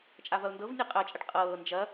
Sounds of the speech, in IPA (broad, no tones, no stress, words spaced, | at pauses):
t͡ʃʼavɐʊ̯ndɤvnʲɛ qʼɜt͡ʃʼɐʈ qʼɤː nd͡ʒɐ